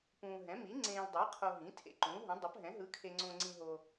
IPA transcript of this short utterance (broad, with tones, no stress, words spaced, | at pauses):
pũː˨ɦɛ̃˩˥mi˩˥ ŋ͡ǀẽː˨ldˤe˩˥qʰo˨ ɦĩ˩˥ tʰḛ˨ǃũː˩˥ɦũ˩˥ dˤo˩˥pɦɛ̃˩˥ ɦɯ˩˥kʰe˨ŋ͡ǀõ˨ŋ͡ǀĩ˨ ɦo˨